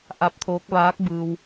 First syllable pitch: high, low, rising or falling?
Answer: rising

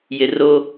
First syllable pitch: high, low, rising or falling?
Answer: low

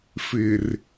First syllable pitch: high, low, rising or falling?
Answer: low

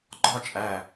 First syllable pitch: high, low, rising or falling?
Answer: falling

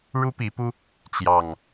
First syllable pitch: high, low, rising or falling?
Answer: high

